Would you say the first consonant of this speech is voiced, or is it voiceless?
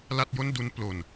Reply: voiced